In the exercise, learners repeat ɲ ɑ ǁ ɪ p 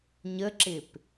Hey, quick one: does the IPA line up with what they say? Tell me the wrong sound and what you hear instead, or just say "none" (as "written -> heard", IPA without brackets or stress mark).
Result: ɑ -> ə